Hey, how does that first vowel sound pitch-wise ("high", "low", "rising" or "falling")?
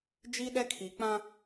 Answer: high